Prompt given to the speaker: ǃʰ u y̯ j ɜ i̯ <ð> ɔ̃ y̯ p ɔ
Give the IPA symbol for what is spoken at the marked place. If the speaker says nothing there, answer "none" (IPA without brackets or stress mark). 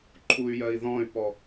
ð